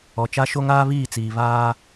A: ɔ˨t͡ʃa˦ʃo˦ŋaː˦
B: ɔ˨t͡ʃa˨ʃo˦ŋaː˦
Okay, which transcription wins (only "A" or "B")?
A